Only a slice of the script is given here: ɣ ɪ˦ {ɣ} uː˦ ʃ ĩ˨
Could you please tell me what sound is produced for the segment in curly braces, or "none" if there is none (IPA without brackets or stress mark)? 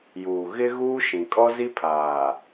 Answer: ɣ